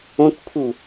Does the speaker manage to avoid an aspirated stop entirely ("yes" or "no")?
no